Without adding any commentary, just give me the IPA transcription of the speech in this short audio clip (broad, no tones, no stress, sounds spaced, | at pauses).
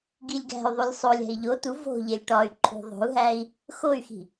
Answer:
ɡ i lʲ ɡ æ̤ y̯ ðˤ u lʲ sˤ o lʲ æ̤ i̯ ʎ o t u v o̤ ʎ e lʲ ʈ ɒ y̯ ǃʰ ṳ ðˤ o̤ u̯ ɦ æ i̯ | x o y̯ x i̤